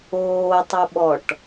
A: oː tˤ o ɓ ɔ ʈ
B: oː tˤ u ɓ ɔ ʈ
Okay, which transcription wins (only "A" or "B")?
B